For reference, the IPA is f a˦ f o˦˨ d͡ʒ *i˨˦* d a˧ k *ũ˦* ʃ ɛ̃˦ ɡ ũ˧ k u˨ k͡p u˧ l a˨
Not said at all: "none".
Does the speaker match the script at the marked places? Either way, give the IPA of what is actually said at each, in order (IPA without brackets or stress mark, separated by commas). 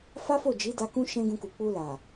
i˨˦, ũ˦